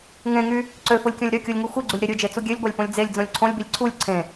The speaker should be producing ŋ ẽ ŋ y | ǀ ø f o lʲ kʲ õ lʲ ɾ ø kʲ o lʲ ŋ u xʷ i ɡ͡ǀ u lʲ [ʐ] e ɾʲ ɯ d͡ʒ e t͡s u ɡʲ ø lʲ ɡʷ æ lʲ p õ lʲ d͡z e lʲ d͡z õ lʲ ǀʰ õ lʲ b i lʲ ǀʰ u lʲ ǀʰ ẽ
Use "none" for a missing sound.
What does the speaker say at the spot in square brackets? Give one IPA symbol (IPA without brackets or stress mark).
ɾ